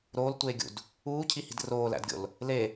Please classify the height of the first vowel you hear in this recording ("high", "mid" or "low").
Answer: mid